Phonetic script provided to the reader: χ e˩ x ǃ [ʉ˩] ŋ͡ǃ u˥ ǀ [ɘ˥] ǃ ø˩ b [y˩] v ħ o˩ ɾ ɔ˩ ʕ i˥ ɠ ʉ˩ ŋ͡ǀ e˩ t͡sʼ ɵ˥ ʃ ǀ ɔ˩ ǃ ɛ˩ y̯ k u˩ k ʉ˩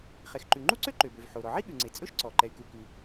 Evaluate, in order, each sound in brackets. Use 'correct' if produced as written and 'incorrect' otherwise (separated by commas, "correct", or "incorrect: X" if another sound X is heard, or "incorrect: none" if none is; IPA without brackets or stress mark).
correct, incorrect: ø˥, incorrect: ø˩